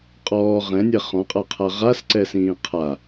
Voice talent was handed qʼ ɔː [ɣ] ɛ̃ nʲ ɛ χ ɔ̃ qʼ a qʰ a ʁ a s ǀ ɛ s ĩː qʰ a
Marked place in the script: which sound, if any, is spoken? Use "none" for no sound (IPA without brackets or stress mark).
ʁ